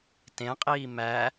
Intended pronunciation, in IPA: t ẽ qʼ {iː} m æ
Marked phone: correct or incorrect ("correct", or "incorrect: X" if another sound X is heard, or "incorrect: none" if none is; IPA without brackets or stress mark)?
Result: correct